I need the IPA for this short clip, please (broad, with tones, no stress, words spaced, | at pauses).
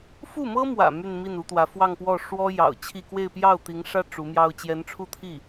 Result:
fu˥˩mɤ˥mwä̰˨˩ my˥˧nmi˥˩nu˧˥t̪wä˧˥ fwɑ˥˧ŋpwɔ˥˩ ʂwɔ˥ jɑ̰˨˩ʊ̯t͡ɕʰi˥˧ kwe˥˧ɪ̯pjɑ˥˩ʊ̯ t̪i˧˥ŋʂä˥ ʈ͡ʂu˧˥mjɑ˥ʊ̯ t͡ɕjɛ˧˥nʈ͡ʂʰu˥˧t̪ʰi˥˩